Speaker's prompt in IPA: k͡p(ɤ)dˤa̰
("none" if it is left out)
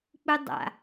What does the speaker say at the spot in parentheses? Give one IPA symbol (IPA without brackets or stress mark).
ɯ